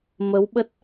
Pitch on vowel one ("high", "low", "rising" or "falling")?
rising